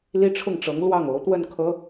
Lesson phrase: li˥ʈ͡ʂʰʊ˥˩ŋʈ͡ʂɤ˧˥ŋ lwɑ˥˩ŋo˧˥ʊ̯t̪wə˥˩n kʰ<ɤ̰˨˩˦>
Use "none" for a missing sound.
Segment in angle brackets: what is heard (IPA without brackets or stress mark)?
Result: ɤ˧˥